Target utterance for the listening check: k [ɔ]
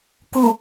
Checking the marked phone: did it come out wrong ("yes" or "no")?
yes